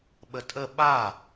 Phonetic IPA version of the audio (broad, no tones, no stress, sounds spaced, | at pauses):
ɓ ə tʼ ə ɓ a